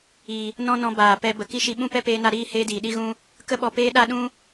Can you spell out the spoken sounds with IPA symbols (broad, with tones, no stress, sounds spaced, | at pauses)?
i˨ | n ɔ̃˦ n ɔ̃˧ b aː˨ p ɛ˧ b ə˨ k i˦ ʃ i˧ ɓ ũ˦ p ɛ˦ p eː˧ n a˧ ɾ iː˦˨ h eː˦ d iː˨ ɗ i˦ ɣ ũ˦ | k ə˦ ɓ ɔ˧ p eː˦ ɗ a˦ ɗ ũ˦